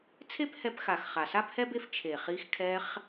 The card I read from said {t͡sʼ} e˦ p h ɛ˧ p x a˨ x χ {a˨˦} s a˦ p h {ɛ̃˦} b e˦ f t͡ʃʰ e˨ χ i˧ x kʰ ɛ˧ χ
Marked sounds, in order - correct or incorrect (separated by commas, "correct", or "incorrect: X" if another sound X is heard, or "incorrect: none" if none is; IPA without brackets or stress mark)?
incorrect: t͡sʰ, incorrect: a˨, incorrect: ɛ˦